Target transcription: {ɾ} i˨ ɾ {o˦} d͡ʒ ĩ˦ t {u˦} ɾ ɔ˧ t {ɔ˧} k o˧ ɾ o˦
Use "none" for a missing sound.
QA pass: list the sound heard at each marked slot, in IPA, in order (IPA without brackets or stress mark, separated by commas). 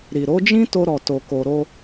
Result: ɾ, o˨˦, o˦, o˧